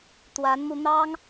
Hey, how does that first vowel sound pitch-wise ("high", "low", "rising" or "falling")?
rising